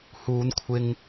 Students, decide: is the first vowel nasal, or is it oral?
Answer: oral